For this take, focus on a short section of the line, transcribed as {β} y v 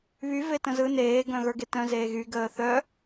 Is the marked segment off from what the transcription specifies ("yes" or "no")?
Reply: no